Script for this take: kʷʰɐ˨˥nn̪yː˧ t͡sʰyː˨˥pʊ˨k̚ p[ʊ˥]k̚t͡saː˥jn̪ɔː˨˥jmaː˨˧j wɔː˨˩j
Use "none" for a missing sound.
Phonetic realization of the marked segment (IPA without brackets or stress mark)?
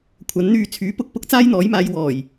ʊ˥